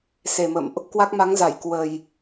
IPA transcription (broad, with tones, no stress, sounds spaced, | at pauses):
s e˨˩ m ə̰˧˨ m ʔ | k w a˦˥ k̚ m a˨˦ ŋ z a˧˩ j k w ə˨˩ j